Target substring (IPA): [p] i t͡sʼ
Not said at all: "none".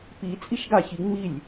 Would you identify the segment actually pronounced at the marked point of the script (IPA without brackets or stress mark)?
p